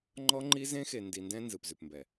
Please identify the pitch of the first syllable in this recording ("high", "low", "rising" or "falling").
high